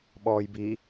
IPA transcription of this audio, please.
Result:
ɓ ɔː j b i

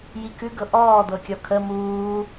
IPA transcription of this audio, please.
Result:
j i k ʉ ɡ ɤ ʔ ɔː d̪ ɤ kʲ ɔ kʰ ə m uː

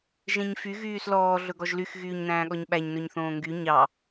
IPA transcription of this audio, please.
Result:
ʒ ẽ ɲ f y ɣ yː s l ɔː ɮ ɵ ɡ ɔ ʒ l y x ɣ yː ɲ n æ̃ː ɠ ɔ ɲ ɓ æ ɲ n ɵ ɲ θ õː ŋ ɡ y ɲ ɑ

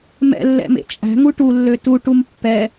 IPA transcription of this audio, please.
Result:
m ɛ̰ lː ɛ̰ m ḛ t͡ʃʼ æ̤ ŋ u ʈ u lː ø t u ʈ u m pː ɛ

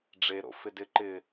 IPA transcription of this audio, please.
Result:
ɖ͡ʐ e ɾ o̰ f ɪ d ɪ ǃ ɪ

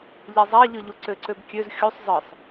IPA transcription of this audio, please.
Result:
ʎ e zˤ æ ʎ ɯ ʎ u ǀ ø ǀ ø b kʲ ø z xʲ u sˤ zˤ ɯ sˤ

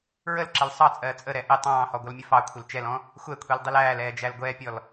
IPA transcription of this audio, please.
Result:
ɹ ə l ǁ ə l sˤ ɑ t͡sʼ ɜː t͡sʼ ə ɾ ɛ ʔ ɪ tˤ ɑ̃ː h ɔ ɡʷ ʌ l mʲ ə f ɑ kʷʰ ɪ l t͡ʃ ɛ l ɔ̃ | xʷ ɛ kʷʰ i l dˤ ɪ l æː l ɛː d͡ʒ æ l ɡʷ ɛː pʲ ɔ l

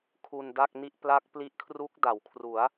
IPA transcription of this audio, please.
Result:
kʰ u˧ n d a˥˩ k̚ n i˥˩ ʔ p l a˦˥ k̚ p l i˦˥ ʔ kʰ r u˦˥ k̚ d a˩˦ w kʰ r u˩˦ a̯

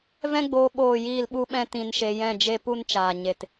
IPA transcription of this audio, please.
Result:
v ɛ̃˦ ɡ͡b oː˧ ɓ oː˦˨ j iː˦˨ l ɓ u˦ ɓ ɛ̃˦ t ĩ˧ n ʃ e˧ j ɛ̃˦˨ d͡ʒ e˦ p u˦ n t͡ʃ aː˨ ɲ e˨ t

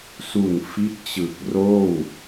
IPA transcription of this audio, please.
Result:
s u˨˩ n f i˦˥ t̚ t͡ɕ ɯ˨˩ k̚ r oː˥˩ w

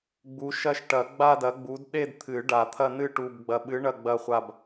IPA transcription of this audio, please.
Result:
ɡ͡b u˨˥ ʃ ɐ˥˧ ʃ ʈ ɐ˨˩˦ ɡ͡b a˥˧ d ɐ˨˥ ɡ͡b u˨˥ d ɗ e˥˧ d t̪ʰ ɨ˨˩˦ ɖ a˨˩˦ t̪ʰ ɐ˥˧ n ɨ˥˧ ʈ u˨ b ɡ͡b ɐ˨ ɓ ɨ˨˥ ɳ ɐ˥˧ ɡ͡b ɐ˥˧ χʷ a˥˧ b

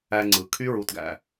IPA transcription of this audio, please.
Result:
æ˧ ŋ͡ǀ ɯ˩ kʰ y˦˥ ɹ u˩˧˩ t ɡ æ̰˩

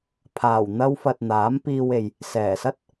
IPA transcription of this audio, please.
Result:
pʰ aː˨˩ w n̪ ɐ˧ w f ɐ˨ t̚ n̪ aː˨˥ m p iː˧ w e˨ j | s ɛː˨˩ s ɐ˥ t̚

